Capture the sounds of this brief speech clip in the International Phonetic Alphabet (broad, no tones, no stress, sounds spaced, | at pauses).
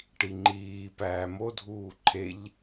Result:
ʈ i ŋ͡ǃ iː p æː m o dʱ uː ǃʰ e ʎ